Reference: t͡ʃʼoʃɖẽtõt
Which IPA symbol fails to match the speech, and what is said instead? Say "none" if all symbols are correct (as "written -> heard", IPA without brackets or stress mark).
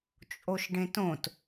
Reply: none